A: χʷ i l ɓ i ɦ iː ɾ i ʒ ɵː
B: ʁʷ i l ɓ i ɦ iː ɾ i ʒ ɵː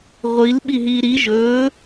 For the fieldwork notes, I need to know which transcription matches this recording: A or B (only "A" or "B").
B